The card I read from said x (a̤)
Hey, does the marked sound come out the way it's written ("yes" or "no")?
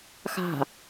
yes